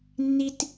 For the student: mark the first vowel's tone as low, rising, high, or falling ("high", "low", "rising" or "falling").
high